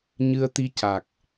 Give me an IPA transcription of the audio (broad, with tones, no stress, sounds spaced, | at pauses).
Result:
ɲ ɨ˧ ə̯ t̪ i˧ c a˨˩ k̚